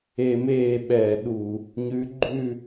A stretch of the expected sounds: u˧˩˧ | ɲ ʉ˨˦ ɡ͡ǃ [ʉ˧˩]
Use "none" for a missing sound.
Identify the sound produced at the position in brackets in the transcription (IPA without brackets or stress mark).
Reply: ʉ˥˨